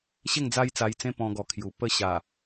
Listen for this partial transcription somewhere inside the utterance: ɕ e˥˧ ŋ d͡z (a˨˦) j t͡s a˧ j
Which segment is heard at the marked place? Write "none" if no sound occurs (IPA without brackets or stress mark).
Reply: a˦